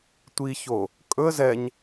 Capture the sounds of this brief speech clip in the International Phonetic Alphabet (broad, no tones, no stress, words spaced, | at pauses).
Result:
tʷiço | kʼɵə̯ zɛɲ